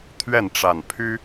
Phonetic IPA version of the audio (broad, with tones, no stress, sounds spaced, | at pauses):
t̪ʰ ɥ ɛ˥˨ n ʈ͡ʂ a˨˩ n pʰ y˦